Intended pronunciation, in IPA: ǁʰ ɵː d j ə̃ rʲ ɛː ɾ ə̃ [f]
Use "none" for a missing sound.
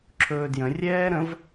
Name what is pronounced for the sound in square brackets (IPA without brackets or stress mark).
v